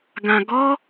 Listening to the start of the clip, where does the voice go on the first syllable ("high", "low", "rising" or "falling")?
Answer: low